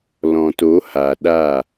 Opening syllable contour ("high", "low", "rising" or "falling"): low